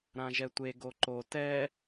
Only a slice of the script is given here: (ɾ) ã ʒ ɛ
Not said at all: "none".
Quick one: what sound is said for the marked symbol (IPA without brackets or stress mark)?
ɾ